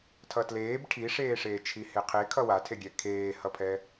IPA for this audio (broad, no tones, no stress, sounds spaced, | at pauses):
tʰ ʌ t l eː b ʈʰ i ʂ eː ʂ eː t͡ʃʰ i h e qʰ e kʰ ʌ w a tʰ e ɡʲ ɛ kʰ eː h ʌ pʰ ɛ